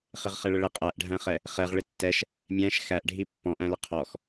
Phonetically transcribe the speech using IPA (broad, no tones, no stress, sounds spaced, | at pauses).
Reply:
χ ɪ ʁ χ ɛ ɭ ə ɭ ɪ qʼ æ ʔ ɖʱ æ̃ χ ɛ | χ ɛ ʁ ɭ ɪ tː ɛ ʃ | mʲ æ̃ ʃ x æ ʔ ɖʱ i pː ɔ̃ ʔ æ̃ l ə qʰ ɔ x